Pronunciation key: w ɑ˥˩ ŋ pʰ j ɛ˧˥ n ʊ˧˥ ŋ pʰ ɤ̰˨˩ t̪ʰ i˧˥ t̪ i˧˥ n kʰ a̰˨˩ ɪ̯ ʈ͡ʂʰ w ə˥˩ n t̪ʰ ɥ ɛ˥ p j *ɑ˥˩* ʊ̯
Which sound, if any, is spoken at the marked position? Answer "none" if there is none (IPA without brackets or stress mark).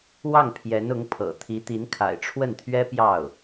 ɑ˥˩